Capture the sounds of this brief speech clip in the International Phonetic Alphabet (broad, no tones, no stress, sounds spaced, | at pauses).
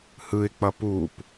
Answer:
h ɯ ɪ̯ k͡p ʌ p u p